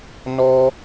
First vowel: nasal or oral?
oral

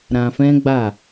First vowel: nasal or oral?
nasal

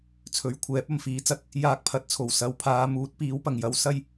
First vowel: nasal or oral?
oral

